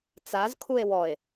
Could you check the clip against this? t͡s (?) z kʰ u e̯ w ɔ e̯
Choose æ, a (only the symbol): a